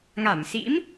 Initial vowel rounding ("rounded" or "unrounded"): unrounded